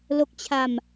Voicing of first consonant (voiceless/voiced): voiced